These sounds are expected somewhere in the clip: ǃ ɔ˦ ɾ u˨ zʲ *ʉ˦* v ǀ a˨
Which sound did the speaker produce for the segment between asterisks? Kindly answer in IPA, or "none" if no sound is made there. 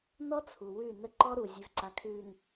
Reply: ʉ˨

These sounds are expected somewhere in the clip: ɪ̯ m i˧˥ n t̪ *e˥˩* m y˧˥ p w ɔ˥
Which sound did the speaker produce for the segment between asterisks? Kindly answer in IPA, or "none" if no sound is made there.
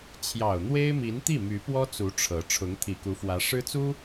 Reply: i˥˩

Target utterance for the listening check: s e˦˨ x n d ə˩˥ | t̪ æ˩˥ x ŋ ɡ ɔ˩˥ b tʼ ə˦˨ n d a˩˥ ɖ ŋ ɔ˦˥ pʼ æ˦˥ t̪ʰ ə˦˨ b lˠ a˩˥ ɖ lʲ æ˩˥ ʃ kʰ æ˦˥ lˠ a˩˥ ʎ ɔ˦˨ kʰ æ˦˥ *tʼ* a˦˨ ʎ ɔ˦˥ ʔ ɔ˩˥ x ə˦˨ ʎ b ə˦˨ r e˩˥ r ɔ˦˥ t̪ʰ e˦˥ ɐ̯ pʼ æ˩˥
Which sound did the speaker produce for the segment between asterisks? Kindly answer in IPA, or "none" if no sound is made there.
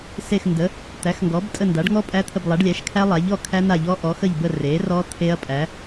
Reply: n̪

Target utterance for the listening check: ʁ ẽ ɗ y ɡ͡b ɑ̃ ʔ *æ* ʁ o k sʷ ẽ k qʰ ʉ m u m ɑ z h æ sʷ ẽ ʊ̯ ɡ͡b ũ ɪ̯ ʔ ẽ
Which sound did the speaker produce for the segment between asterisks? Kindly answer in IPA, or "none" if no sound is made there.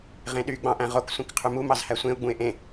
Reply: æ̃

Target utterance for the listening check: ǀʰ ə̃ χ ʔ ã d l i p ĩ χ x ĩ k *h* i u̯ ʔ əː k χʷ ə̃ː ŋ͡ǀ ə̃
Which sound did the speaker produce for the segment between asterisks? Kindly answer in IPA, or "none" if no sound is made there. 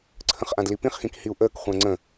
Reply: h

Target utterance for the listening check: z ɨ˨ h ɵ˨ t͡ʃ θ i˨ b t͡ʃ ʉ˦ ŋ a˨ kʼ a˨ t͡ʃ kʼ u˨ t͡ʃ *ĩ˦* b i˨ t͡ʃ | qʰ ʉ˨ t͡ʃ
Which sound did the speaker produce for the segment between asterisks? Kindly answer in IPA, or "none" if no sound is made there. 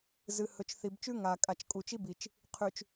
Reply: i˦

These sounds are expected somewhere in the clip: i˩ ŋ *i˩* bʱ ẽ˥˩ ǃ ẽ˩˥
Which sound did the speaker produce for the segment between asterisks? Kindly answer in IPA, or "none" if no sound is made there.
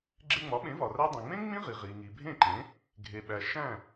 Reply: i˩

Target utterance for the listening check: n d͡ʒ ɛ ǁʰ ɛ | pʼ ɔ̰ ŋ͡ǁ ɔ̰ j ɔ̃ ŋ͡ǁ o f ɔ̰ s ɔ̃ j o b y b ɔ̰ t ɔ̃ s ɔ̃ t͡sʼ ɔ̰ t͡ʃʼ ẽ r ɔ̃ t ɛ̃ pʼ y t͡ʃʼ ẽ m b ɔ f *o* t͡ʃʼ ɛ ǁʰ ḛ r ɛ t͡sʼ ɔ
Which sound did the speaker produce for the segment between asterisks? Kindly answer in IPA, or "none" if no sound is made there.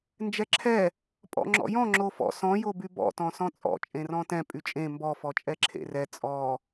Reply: ɔ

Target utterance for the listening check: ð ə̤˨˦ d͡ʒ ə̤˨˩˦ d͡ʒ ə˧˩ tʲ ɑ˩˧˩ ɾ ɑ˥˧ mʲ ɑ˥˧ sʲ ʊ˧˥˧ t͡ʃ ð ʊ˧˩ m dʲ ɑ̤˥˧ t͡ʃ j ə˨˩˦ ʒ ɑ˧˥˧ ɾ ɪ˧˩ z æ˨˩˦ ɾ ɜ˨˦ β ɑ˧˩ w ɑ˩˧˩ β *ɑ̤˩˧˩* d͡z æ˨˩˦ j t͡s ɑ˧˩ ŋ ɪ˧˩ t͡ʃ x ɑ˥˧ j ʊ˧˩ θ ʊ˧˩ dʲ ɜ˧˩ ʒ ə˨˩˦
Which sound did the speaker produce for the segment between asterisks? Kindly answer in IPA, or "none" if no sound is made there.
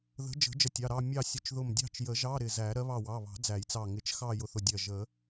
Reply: ɑ̤˨˩˦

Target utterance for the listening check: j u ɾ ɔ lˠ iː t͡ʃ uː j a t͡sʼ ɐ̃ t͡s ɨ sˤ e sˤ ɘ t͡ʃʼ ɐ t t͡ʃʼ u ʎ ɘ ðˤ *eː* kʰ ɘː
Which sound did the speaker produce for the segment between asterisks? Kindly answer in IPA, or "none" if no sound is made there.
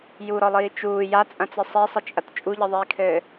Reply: iː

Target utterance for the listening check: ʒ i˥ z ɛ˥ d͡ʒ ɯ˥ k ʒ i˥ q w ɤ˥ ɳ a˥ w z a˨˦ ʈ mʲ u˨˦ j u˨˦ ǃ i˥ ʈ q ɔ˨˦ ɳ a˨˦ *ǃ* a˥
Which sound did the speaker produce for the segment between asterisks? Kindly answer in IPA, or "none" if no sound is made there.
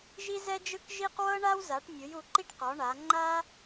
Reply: ŋ͡ǃ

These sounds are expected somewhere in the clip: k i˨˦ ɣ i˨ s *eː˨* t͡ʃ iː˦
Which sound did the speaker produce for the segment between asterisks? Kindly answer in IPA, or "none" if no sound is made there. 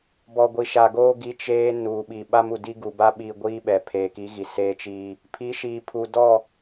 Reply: eː˦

